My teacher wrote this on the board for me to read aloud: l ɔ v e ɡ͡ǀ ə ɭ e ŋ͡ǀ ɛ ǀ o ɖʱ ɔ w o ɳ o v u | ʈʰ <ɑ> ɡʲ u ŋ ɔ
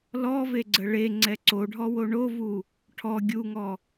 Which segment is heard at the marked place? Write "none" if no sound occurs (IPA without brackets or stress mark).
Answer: ɔ